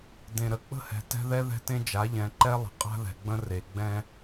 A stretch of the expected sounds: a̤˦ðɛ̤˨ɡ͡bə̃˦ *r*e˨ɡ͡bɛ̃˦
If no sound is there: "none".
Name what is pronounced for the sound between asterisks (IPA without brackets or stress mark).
r